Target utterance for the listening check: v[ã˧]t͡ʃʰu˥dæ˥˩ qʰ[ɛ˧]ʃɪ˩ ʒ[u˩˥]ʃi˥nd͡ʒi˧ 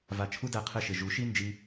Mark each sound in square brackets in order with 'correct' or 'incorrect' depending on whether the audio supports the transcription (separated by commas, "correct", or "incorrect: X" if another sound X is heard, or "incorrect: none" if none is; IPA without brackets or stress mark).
incorrect: a˧, correct, correct